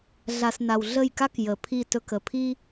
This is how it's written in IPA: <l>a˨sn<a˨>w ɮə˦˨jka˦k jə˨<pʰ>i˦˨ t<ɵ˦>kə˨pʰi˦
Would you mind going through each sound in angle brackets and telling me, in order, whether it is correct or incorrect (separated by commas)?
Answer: incorrect, correct, correct, correct